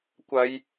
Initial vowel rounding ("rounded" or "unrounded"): unrounded